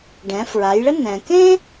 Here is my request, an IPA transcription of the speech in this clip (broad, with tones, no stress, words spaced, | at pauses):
ɖɛ̃˩˧fɹa˩˧jɭə˥ nɛ̃˩kẽ˥